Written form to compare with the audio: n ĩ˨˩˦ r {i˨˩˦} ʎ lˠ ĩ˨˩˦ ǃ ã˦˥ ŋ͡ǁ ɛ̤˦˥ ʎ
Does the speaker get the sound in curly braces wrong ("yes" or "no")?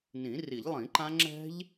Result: no